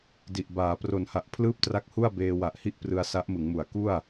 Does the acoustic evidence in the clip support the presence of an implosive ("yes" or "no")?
no